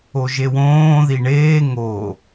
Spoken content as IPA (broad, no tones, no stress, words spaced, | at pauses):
oʒewõː ðiɳeː ŋo